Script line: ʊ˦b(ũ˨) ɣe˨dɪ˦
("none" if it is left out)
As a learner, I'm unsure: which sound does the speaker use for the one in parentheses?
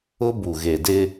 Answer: u˨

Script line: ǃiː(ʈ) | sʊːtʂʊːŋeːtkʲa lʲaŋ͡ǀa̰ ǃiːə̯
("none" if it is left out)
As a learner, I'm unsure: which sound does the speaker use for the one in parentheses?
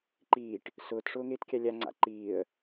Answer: ʈ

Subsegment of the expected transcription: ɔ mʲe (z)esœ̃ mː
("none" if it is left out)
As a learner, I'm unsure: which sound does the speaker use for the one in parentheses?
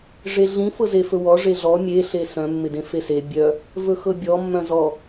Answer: ɬ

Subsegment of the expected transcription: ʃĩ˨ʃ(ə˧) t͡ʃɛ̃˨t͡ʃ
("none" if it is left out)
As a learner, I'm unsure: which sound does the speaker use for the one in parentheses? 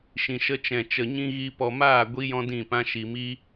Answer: ə˧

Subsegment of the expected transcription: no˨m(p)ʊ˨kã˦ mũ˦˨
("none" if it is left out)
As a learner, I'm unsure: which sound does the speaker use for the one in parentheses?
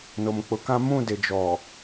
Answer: k͡p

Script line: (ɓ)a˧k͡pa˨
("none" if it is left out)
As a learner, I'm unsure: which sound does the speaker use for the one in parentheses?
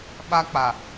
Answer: ɓ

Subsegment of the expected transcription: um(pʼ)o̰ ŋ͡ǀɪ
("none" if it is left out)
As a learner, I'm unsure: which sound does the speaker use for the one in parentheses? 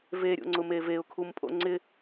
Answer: pʼ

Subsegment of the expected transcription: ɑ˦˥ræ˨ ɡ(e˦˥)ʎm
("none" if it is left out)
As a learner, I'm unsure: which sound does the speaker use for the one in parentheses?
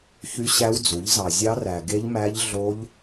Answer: e˦˥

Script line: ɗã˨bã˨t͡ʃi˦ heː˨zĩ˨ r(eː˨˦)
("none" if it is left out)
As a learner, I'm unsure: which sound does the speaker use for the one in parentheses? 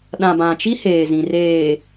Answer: eː˨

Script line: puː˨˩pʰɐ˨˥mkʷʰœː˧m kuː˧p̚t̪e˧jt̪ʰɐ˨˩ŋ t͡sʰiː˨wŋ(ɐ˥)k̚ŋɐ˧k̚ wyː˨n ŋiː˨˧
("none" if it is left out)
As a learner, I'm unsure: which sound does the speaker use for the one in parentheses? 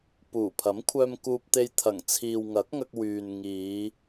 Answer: ɐ˨˥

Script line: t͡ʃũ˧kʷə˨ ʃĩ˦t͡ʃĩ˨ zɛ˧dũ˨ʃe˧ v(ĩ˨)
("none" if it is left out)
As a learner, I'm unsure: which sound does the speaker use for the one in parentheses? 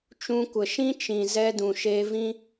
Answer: ĩ˦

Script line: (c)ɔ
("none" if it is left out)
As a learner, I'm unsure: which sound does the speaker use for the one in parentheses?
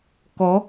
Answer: k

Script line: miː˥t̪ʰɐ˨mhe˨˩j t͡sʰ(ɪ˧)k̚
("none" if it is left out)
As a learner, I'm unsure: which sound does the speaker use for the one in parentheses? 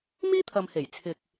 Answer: ɪ˧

